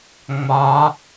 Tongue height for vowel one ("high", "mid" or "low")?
low